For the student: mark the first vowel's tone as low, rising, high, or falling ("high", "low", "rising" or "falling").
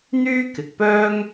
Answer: high